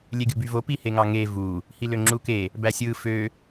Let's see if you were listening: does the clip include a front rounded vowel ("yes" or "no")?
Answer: yes